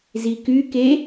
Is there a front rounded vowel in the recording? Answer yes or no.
yes